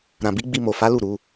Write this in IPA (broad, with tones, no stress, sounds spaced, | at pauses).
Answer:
ɾ ã˨ b i˨˦ ɡ͡b i˧ m o˨ f a˨˦ l u˦˨ ɾ u˨˦